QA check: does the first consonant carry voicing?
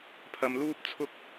no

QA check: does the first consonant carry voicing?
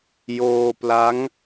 yes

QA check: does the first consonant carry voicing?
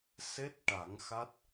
no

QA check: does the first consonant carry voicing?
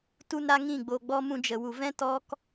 no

